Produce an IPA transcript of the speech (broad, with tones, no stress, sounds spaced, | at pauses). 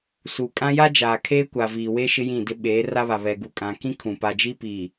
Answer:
s u˨ kʼ ã˦ j a˦ d͡ʒ aː˨ kʰ eː˦ kʷ a˨ v iː˨ w e˦ ʃ ɪ˦ j ĩ˦˨ d ɪ˦ ɓ eː˨˦ r a˦ β a˨ β ɛ˨ ɡ u˨ kʼ ã˨ k ĩ˦ kʰ ũ˨ p a˨ d͡ʒ i˦ p iː˨